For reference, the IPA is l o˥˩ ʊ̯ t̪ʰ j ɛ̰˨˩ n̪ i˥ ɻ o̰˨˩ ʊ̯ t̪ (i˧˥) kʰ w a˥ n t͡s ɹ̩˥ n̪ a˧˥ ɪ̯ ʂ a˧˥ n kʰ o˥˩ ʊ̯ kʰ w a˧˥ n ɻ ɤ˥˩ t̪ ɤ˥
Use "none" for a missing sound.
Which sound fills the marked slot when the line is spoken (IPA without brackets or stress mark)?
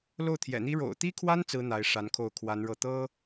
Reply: i˥